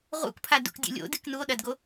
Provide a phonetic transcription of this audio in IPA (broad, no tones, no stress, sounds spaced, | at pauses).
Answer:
ʁ ṵ k pʰ a d ṵ k dʲ ṵ lʲ o̰ d ɨ k n u o̯ ɗ ɐ d ɡ o